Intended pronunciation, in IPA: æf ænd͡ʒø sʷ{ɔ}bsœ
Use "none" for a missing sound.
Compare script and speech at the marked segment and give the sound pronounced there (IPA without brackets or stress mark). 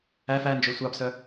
ɑ